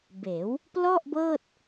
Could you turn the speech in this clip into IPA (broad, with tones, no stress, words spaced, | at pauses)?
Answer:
beː˩˦w | plɔ˥˩ʔbɤː˥˩t̚